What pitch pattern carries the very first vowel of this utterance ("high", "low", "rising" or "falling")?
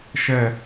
falling